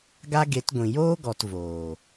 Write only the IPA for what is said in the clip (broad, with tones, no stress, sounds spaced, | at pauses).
ɡ a˦ ɡ e˨˦ t ɡʷ ĩ˨ j oː˦ ɡ ɔ˨ t v oː˨